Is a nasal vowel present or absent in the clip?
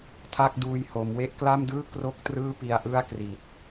absent